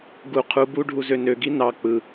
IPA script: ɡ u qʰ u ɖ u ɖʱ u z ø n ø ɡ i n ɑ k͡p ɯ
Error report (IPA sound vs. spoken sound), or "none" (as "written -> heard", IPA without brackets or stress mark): ɖ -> b